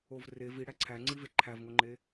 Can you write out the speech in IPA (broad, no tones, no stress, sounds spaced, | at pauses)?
o v r e v i ɽ æ ǀʰ æ ŋ͡ǀ i v e ǃʰ æ v ŋ o ŋ͡ǃ e